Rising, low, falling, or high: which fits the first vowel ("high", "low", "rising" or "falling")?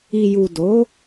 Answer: low